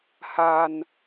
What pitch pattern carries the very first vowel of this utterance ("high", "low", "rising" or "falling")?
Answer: low